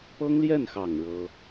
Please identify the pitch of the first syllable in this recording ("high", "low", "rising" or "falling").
high